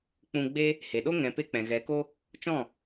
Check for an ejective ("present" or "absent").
absent